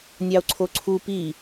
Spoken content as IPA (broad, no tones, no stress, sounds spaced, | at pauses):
nʲ ɑ o̯ ǀʰ o ǀʰ u p i